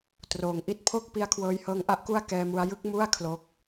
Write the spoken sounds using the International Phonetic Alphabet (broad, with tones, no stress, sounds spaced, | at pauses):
t r oː˩˦ ŋ ʔ i˦˥ t̚ pʰ o˥˩ k̚ p i˦˥ a̯ kʰ w ɤː˧ j h ɤː˦˥ ŋ ʔ a˥˩ ʔ k u˥˩ a̯ k ɛː˧ m u˧ a̯ j ɯ˥˩ k̚ m u˥˩ a̯ kʰ l o˦˥ k̚